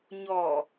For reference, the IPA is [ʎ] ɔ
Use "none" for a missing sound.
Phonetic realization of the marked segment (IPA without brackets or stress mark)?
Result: ɲ